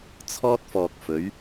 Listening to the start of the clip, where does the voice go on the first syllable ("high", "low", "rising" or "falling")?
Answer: high